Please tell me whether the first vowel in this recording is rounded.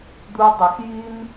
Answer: yes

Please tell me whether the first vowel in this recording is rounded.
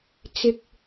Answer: no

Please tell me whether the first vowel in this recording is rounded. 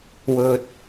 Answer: yes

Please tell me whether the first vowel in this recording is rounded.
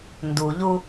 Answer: yes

